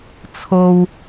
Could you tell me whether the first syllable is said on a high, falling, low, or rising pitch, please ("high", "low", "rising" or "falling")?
low